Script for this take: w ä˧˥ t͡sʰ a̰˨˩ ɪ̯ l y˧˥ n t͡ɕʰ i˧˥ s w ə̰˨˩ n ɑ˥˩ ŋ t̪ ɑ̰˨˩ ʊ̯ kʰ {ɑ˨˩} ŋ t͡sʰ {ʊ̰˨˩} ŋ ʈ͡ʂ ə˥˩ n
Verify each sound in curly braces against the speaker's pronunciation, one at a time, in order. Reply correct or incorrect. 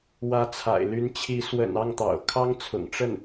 incorrect, correct

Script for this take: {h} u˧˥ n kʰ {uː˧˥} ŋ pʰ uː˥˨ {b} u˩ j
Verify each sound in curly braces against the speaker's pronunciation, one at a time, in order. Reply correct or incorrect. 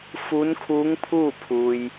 incorrect, correct, incorrect

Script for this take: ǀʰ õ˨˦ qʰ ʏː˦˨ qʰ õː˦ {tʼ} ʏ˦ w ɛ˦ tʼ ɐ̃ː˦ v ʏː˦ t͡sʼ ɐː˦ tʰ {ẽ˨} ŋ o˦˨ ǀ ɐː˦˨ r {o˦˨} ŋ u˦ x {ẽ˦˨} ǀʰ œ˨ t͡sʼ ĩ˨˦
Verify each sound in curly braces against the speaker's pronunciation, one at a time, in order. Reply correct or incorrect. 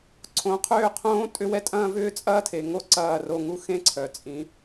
correct, incorrect, correct, incorrect

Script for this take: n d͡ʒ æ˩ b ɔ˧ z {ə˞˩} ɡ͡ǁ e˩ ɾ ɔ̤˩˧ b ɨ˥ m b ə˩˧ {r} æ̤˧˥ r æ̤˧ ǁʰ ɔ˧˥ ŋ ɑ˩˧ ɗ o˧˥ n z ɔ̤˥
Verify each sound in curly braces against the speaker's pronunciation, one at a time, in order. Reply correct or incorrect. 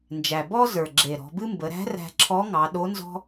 correct, incorrect

